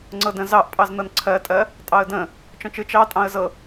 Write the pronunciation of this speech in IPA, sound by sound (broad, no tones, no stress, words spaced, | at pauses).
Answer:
ŋ͡ǀɤdə̃ zɑʔpʼɑz nɤnǀʰɜtʼɜ | tʼɑə̯də̃ | t͡ʃɔ̃t͡ʃɯ t͡ʃɑ tʼɑ̃ə̯zɤ